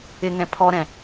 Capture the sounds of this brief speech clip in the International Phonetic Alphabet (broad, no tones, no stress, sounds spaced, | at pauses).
ɪ ŋ ɛ̃ pʰ ɔ ɾ ɛ̃